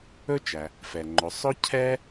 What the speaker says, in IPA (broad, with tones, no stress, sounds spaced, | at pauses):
ɵ˥ t͡ʃ æ˩ | f ɛ˩ ŋ͡ǃ ɵ˩˧ sˤ ɵ˥ cʰ ɛ˥